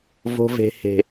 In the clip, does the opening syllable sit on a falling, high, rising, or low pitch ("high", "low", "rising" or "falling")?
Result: low